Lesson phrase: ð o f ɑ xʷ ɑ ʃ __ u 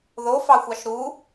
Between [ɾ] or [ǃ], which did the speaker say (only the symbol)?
ɾ